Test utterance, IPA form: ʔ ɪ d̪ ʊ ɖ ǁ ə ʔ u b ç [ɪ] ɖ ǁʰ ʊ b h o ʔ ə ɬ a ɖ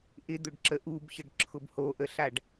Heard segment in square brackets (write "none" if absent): ə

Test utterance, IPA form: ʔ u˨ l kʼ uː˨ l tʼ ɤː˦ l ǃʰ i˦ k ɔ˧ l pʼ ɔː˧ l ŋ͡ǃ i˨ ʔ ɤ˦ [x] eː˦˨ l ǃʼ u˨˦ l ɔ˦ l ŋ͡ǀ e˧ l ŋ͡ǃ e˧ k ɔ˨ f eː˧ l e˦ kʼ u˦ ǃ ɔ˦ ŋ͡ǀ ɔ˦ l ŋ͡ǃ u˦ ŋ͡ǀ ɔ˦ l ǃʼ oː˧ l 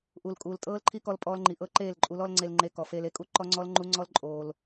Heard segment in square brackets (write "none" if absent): ǃ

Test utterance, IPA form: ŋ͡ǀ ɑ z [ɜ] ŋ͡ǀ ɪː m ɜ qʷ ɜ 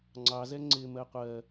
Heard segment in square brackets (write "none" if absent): ɛ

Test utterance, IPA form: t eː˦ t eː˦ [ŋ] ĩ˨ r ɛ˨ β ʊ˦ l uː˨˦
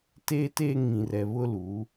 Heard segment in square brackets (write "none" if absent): ŋ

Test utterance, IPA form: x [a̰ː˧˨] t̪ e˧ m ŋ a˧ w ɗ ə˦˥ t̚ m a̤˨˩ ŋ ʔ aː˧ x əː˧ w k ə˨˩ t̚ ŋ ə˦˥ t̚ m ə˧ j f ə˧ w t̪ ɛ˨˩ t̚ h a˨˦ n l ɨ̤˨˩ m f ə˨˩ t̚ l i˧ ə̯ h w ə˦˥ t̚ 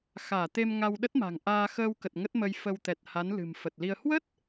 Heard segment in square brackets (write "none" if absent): aː˧˩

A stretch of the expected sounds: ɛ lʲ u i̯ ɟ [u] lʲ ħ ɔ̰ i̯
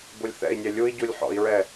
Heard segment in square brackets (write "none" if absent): u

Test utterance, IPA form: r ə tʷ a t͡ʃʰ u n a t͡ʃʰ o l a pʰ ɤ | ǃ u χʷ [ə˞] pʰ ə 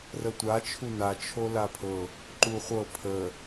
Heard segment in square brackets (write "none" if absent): ɤ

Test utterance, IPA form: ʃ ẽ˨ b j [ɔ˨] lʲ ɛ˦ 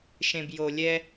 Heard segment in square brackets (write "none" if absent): o˨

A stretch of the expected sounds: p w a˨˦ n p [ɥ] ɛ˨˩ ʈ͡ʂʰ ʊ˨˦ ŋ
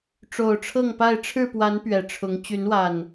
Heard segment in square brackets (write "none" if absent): ɥ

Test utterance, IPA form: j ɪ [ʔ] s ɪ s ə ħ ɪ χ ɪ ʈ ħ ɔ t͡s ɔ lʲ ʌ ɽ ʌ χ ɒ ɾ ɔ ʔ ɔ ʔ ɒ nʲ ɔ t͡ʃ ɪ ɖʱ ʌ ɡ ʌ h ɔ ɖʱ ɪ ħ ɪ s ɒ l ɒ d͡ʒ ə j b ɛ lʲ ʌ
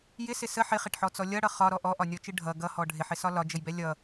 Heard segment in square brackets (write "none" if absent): none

